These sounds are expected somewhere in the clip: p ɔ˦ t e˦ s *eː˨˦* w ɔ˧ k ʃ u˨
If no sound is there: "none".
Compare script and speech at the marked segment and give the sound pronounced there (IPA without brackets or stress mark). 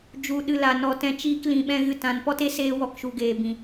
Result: eː˧